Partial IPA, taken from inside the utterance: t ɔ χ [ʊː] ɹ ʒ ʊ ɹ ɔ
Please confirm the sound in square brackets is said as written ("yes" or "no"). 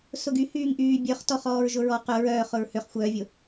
no